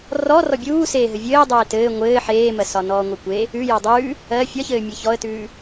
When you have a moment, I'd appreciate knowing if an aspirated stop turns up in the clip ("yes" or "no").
no